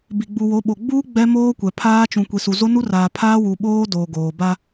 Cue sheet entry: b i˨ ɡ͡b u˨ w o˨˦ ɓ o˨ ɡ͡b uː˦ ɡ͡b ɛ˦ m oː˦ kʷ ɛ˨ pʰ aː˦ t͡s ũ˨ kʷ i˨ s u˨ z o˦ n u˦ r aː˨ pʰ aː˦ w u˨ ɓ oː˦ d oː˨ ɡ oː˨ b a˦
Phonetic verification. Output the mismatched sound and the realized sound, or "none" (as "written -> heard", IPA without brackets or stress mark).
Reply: t͡s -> t͡ʃ